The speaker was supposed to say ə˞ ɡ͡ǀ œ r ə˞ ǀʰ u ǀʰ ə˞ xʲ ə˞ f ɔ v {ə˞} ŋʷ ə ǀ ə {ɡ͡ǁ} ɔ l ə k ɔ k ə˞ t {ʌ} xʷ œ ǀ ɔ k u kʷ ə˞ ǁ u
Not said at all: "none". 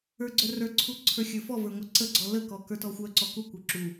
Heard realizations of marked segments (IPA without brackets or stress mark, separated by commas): ə˞, ɡ͡ǀ, ɔ